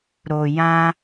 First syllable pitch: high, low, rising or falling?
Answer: low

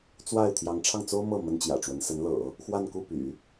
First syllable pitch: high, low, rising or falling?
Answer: falling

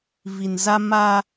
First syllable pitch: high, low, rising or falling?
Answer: low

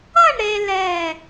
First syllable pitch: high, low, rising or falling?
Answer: falling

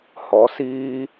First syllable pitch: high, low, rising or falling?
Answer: rising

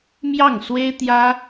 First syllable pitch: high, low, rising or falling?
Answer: falling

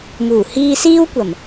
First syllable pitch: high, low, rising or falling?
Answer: low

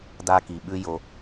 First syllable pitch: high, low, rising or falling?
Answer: high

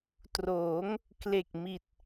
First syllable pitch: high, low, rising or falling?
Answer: rising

